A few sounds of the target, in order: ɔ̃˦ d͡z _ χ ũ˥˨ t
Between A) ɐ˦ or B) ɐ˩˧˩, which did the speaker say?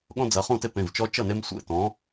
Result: B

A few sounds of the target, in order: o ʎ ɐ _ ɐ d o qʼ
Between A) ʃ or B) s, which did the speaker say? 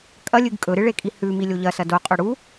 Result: B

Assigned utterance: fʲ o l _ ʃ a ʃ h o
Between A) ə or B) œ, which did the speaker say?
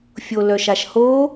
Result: B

